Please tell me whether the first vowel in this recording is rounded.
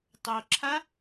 yes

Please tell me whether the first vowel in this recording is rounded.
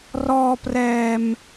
yes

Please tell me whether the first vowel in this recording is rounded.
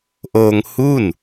yes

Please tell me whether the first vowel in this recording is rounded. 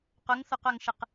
yes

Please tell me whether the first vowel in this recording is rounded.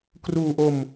yes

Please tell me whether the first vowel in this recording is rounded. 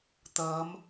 no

